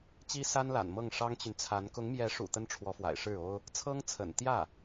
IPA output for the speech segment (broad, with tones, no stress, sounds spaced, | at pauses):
t͡ɕ i˥ s a˥ n l a̰˨˩ n m ɤ˥˩ ŋ ʂ ɑ˥ ŋ t͡ɕ y˨ n t͡sʰ a˧˥ n k ʊ˧˥ ŋ m j ɛ˧˥ ʂ ṵ˨˩ t̪ ə˥ n ʈ͡ʂʰ w ɔ˧˥ f w a̰˨˩ ɪ̯ ʂ ɻ̩˥˩ o˥ ʊ̯ | t͡sʰ ɤ˥ ŋ t͡sʰ ə̰˨˩ n t̪ j ä˥˩